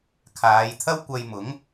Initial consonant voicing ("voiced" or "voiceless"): voiceless